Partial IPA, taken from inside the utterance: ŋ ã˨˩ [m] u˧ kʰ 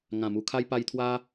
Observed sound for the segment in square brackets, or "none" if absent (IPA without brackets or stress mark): m